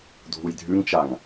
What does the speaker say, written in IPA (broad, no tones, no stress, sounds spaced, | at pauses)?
dʱ u j dʱ ʉ ŋ t͡ʃ a ŋ